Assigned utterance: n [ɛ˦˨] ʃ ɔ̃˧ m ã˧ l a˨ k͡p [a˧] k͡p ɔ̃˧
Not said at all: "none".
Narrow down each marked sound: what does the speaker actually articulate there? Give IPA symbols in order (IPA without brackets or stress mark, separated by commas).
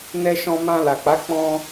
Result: ɛ˧, a˨˦